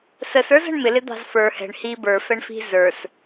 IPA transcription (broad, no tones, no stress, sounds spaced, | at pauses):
s ə s ə˞ z ə̤ ɳ m ɪ l ɪ d̪ ɑ̤ z f ə˞ h ɛ̤ ɳ h i b ə˞ f ɛ ɳ f i̤ z ə˞ s